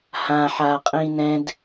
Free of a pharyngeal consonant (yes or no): no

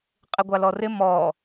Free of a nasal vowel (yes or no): yes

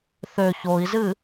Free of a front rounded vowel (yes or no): no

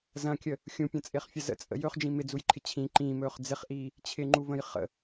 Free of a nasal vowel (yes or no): no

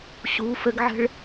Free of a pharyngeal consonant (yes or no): no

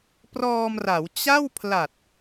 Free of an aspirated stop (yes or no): no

